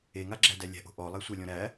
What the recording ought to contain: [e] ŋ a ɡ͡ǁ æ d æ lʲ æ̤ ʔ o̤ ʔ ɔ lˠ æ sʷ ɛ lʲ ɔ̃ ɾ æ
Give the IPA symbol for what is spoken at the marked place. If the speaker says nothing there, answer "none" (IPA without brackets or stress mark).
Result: e